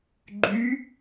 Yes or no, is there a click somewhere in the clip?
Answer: yes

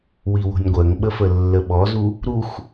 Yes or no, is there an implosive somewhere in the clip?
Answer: yes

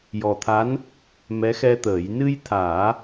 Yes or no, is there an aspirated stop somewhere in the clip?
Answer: yes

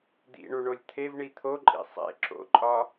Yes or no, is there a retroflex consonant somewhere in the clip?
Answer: yes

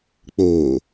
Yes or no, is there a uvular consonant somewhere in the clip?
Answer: no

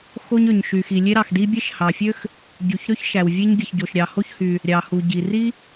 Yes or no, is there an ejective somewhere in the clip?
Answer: no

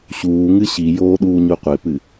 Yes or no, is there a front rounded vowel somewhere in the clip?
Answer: no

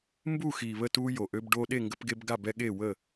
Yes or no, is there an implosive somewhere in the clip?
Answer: yes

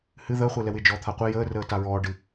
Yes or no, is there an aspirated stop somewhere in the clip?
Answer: yes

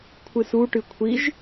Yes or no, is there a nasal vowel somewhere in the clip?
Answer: no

